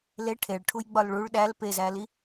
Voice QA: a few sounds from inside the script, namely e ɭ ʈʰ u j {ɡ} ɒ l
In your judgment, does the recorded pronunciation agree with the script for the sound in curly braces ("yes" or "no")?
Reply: no